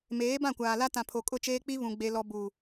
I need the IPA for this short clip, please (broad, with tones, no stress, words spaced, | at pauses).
meː˨˦bã˦˨kʷaː˨la˦ tã˨pʰo˨kʼʊ˦˨t͡ʃeː˦ k͡pi˦βũ˨ ɡ͡be˦lɔ˦ bu˨